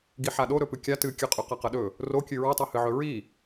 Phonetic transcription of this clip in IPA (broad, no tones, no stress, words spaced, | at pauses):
ɡiħaɗo ɾɵpɨkʲa tɨkʲɨqʼɵ qaqɐɗɵ | rokʲɨ ɹɐtˤahɨʕɵ ɹi